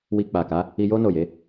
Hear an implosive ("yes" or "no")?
no